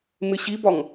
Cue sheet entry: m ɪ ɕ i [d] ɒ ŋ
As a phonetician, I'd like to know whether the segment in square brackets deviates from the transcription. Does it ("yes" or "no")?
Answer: yes